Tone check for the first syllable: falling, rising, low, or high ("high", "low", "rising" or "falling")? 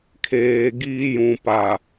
low